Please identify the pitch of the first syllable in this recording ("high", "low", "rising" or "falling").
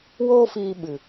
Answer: high